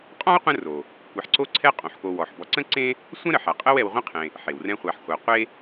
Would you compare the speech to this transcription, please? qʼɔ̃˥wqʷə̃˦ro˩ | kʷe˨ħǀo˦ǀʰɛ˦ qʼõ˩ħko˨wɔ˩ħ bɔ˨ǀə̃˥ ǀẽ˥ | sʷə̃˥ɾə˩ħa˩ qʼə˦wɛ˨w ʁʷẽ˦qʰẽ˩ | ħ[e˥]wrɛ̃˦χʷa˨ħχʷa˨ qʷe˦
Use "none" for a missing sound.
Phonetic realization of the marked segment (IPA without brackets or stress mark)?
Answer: e˩